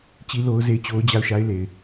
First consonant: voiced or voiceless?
voiceless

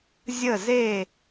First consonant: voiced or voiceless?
voiced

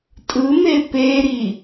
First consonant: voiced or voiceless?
voiceless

